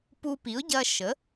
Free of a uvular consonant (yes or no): yes